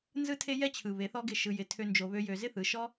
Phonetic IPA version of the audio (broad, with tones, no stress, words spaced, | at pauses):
nzɯ˧tʰe˧jɛ˧t͡ɕʰɯ˨ βe˨˦θɔ˦ɡɪ˦˨ ʃɯ˧jɪ˧ tʰø˦nd͡ʒo˧βø˦jø˧ zɪ˦θɯ˨˦ʃɔ˦